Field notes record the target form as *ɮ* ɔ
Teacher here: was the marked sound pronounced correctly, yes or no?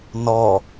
no